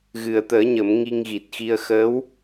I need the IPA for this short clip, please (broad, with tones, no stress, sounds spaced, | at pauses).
ɣ ɨ˨˩ ə̯ t̪ əː˨˩˦ ɲ ə˨˩˦ m ŋ i˧ ŋ ɣ i˨˩ t̚ x i˧ ə̯ x əː˧˥ w